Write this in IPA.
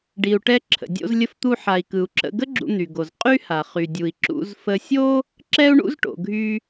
ɖ i˩ u̯ ʈ ɛ˧ ǁʰ ə̰˩ dʲ o̰˧ z lʲ ə˧ f t̪ u˧ ħ a˩ i̯ k ɯ˩ u̯ ǁ ə̰˧ ɡ ə˥ ɡ͡ǁ ṵ˧ n̪ y˩ ɡ o˩ z qʼ y˥ h a˩ χ y˩ dʲ u˩ i̯ ǁ ṵ˧ z f ə˧ sʲ o˥ | ǁ ɛ˥ u̯ ɳ ṵ˥ z ʈ o̰˩ ɡʱ y˧

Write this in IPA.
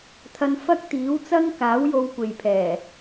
t̪ʰ ɐ˧ n f ɐ˥ k̚ t̪ iː˨˥ w t͡s ɐ˥ ŋ k aː˨˥ w j o˧ w kʷ e˨ j pʰ ɛː˨˩

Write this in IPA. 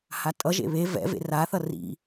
h a tʼ ʌ ʒ ḛ β e v ɛ̰ v ḛ r a θ ʌ r ḭ

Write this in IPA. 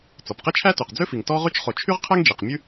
t͡s ɔ˩ p q e˥ t͡ʃʰ æ˥ t y˩ q d͡z ø˥ f i˩ ŋ t ɔ˥ ʁ y˥ t͡ʃ χ o˩ t͡ʃʰ y˥ ʁ qʰ ɛ˥ ŋ d͡ʒ i˩ q mʲ ʉ˥

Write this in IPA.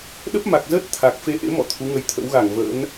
ɗ ə˦˥ p̚ m a˨˩ k̚ z əː˦˥ t̚ t̪ʰ a˨˩ k̚ f e˧ ʔ ḛ˧˥ m ɔ̰˧˨ t̪ʰ u˨˦ ŋ ə˧ j t̪ʰ ə̰˧˥ w ɣ a˧˩ ŋ v ə̰ː˧˥ n

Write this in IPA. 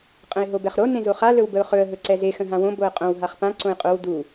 qʼ ə̃ ɪ̯ ɦ o b ɛ χ ɾ o n ẽ z o χ a l ɵ w b ə ʊ̯ χ ɵ ə̯ ɦ ɵ ǀ ɛ z e x ə̃ ɦ ã w õ b o ə̯ qʼ õ w ɦ a χ p ã ǀ õ ɪ̯ qʼ o w d u

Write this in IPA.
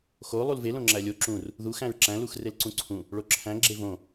x o lˠ u l v e l õ ŋ͡ǁ æ lʲ o ǁ ũ r | ð u x æ̃ ɹ ǁ æ̃ l u x r e l ǀ ũ ǀʰ ũ | ɭ o ǁʰ æ̃ ɡ͡ǁ e v õ

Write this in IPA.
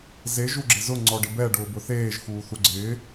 z e ʒ u ɡ͡ǁ ɪ z ʊ ŋ͡ǀ ɔ ɖ ɪ b ɛ ɖ ʊː b ʊ θ eː ʒ x uː θ u ɡ͡ǀ ɪː

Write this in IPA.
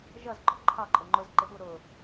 ʒ ʌ z ɡ͡ǃ ɔ ǃʰ ɑ ǃʼ ʊ ŋ͡ǃ ʊ z ǃ ɪ ɓ u ɾ ʊ

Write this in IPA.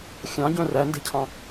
xʲ ɑ̃ ɟ œ̃ r æ n d e̤ cʰ ɑ̃

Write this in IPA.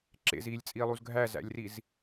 ǁ ḛ z iː lʲ t͡sʼ iː lˠ u z ɡʱ æ z æ̰ lʲ r i z

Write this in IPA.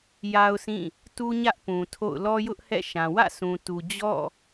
j a˦ ʊ̯ s ĩ˦˨ | t u˦ ɲ ä˦ ʔ p ũ˨ tʰ o̰˦˨ ʊ̯ l ɔ˦ j ʊ˦ ʔ h ɛ̰˦˨ ʃ ã˨ w ä̰˦˨ s ũ˨ t u˨ d͡ʑ ɔ̰˦˨

